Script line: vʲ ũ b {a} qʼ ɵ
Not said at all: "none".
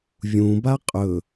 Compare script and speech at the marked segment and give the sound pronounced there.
a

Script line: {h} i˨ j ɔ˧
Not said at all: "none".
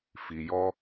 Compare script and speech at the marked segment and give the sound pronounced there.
f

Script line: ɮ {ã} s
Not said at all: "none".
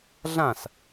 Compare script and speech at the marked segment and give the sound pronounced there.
ã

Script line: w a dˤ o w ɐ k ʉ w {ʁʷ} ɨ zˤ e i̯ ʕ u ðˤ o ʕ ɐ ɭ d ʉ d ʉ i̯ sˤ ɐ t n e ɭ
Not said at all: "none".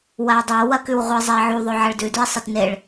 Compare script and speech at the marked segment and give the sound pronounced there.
ʁʷ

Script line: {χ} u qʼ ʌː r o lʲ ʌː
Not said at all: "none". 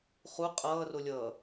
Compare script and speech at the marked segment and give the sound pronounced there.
χ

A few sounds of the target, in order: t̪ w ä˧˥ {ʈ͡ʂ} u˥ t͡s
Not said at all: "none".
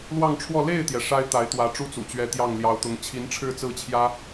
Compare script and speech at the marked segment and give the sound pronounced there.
ʈ͡ʂ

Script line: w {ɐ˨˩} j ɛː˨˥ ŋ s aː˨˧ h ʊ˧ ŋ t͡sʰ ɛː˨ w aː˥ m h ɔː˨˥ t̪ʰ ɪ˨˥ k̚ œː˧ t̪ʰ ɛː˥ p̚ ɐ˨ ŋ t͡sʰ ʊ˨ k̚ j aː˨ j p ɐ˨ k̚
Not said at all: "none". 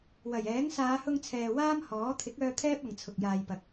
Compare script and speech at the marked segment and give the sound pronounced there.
ɐ˨˩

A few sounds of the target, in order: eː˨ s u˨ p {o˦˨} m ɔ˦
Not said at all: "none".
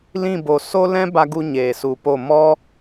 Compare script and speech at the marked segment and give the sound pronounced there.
o˦˨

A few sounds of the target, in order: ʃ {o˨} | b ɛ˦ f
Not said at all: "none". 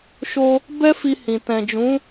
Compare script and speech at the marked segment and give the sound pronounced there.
o˧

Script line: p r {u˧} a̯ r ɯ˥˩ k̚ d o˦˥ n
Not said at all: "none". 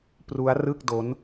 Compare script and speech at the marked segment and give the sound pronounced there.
u˦˥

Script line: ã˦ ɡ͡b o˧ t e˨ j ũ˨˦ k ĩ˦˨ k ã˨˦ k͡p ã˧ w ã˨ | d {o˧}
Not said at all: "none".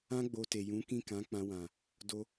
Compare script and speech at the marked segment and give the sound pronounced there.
o˧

